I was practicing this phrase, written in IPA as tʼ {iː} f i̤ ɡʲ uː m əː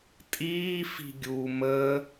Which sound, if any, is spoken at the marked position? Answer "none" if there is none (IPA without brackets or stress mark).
iː